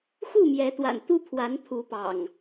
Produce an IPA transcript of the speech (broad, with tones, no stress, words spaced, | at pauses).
xu˥˨mjɛ˨˦t̪wa̰˨˩n t̪u˦pʰwa˨˦npʰu˨˦pɑ̰˨˩ŋ